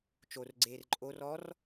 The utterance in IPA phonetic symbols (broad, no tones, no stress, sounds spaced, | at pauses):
t͡ʃ o r ɡ͡ǀ eː r ǃʼ o r ɔ r